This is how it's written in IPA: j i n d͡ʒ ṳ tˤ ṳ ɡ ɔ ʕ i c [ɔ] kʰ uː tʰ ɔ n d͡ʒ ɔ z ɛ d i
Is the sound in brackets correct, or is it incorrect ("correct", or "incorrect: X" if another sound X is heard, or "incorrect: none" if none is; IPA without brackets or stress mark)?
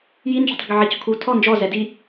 incorrect: ɔ̤